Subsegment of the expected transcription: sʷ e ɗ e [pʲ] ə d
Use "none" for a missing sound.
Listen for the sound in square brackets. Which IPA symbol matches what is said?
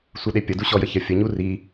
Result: pʲ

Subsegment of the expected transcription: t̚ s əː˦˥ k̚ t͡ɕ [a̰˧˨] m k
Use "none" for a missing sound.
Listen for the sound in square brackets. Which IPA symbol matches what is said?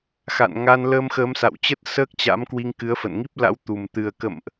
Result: a̰˧˥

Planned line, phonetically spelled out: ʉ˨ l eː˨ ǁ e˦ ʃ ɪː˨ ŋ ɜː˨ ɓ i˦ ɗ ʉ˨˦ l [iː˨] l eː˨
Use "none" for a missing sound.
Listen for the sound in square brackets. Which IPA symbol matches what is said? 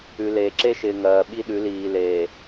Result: iː˨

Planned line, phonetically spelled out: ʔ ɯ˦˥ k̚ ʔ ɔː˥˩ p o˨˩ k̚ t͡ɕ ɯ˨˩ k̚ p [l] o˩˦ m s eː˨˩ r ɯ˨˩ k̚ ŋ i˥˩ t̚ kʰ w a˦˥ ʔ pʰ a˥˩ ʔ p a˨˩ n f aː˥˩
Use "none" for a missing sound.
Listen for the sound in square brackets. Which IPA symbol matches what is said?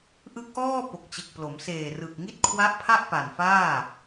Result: l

